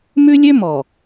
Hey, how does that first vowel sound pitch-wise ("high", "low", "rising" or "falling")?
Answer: high